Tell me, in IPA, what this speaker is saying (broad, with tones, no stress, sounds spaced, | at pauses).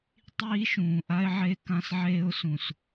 tˤ iː˦ ʃ ũː˨ ʔ a˦ ɪ̯ ʕ e˦˨ k ã˦ s ʕ eː˦ ʊ̯ s ũ˨ s